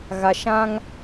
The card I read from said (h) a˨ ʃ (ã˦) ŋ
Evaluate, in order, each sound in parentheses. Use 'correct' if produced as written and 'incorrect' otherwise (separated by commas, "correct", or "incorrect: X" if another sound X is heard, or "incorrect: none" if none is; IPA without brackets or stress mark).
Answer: incorrect: ɣ, correct